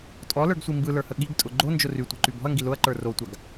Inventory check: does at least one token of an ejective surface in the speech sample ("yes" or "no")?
yes